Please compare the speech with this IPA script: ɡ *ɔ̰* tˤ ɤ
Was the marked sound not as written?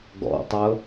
no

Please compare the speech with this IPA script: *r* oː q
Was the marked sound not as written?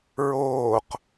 yes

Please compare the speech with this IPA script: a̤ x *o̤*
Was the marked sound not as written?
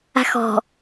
yes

